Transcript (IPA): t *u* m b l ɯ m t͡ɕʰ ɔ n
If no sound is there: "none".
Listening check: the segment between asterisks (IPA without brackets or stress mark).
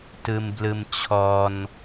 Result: ɯ